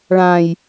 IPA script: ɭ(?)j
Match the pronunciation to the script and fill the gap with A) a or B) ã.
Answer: B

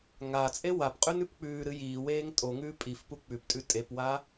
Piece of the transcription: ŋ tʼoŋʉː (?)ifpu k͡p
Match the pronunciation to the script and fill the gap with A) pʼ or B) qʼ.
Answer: A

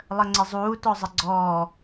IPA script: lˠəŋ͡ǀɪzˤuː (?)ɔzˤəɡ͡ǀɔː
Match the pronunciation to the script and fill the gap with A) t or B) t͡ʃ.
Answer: A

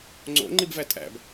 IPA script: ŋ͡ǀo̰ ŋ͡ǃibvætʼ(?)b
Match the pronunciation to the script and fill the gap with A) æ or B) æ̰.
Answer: B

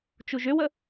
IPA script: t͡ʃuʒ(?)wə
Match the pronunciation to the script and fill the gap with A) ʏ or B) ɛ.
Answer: A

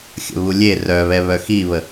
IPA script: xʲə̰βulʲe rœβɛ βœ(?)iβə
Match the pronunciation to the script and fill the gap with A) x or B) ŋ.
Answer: A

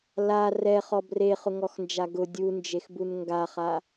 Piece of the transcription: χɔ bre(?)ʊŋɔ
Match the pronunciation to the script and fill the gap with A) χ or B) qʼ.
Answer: A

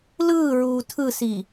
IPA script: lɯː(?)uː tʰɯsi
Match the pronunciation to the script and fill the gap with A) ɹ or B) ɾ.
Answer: A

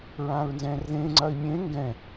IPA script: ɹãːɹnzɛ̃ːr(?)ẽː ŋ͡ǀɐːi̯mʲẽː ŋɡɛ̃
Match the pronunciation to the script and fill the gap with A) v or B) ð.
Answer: B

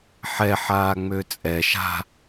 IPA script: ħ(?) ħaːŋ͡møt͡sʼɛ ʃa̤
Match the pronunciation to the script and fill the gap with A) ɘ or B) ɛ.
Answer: B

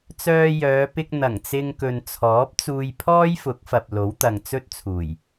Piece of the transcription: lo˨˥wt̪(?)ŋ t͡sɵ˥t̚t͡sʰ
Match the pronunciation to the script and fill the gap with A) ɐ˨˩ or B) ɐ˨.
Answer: B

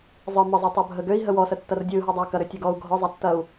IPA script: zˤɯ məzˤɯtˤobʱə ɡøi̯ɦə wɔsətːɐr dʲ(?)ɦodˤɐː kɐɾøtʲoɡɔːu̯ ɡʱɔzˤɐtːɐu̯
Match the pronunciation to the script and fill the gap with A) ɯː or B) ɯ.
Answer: A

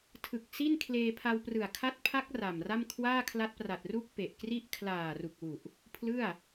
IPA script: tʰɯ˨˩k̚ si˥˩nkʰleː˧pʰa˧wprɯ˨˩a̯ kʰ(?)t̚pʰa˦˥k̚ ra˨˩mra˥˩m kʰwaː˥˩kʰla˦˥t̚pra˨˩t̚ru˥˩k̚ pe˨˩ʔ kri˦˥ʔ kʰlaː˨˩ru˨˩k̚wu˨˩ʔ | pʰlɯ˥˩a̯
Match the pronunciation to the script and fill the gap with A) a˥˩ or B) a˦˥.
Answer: B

